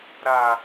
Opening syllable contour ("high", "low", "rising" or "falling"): low